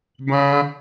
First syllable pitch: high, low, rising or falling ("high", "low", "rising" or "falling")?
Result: high